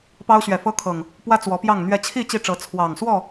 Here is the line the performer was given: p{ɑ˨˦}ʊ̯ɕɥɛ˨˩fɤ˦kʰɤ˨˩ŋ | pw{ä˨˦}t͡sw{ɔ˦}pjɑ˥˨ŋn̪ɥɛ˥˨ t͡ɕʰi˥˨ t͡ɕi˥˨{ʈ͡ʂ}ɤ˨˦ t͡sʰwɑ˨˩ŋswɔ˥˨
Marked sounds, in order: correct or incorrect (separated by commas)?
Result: incorrect, incorrect, incorrect, correct